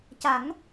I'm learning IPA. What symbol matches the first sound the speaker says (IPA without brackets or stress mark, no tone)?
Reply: c